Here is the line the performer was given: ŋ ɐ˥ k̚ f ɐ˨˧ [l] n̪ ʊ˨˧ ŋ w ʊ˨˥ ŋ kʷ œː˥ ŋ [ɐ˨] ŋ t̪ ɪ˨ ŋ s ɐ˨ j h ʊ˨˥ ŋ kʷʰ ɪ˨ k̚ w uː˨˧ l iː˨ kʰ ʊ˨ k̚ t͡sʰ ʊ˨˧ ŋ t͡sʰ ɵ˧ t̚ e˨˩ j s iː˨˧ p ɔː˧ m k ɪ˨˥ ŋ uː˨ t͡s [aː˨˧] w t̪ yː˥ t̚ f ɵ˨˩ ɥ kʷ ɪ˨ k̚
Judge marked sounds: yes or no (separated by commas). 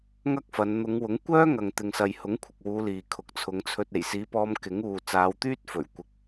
no, yes, yes